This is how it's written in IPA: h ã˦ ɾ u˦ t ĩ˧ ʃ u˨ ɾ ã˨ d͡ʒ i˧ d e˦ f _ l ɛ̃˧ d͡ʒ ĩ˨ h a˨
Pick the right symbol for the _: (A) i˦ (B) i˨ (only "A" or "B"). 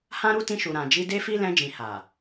A